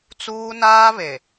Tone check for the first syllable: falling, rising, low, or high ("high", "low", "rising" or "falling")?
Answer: high